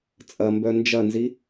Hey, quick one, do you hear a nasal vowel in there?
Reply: no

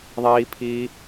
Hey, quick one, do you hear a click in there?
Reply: no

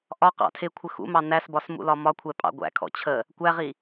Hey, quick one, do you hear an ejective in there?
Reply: yes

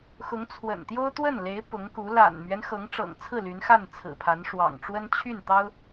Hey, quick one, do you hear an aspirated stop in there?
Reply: yes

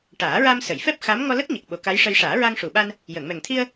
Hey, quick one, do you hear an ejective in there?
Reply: no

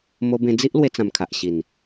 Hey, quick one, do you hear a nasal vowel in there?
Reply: yes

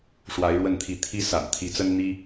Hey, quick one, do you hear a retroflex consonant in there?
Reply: yes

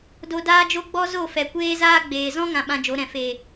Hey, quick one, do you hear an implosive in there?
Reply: yes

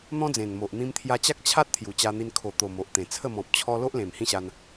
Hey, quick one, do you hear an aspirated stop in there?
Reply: yes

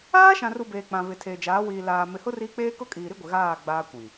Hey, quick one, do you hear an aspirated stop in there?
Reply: yes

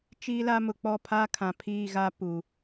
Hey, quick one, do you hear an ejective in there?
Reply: no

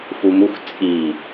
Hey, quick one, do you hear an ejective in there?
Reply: yes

